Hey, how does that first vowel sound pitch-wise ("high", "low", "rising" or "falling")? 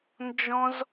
high